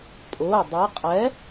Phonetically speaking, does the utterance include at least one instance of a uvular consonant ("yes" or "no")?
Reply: yes